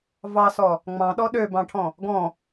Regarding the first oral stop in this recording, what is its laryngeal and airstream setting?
implosive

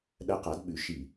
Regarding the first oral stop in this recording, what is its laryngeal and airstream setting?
implosive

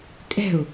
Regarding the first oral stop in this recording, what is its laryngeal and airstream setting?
ejective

